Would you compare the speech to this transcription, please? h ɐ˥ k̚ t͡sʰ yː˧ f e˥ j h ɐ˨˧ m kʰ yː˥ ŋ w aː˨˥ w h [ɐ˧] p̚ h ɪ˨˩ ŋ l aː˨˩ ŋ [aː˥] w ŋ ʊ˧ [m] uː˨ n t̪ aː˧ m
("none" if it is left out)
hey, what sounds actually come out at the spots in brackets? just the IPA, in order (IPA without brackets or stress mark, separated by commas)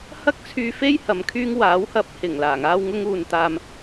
ɐ˧, aː˧, ŋ